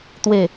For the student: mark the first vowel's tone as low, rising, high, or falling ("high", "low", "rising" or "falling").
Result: low